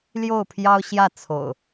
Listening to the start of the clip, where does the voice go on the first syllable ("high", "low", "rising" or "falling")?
falling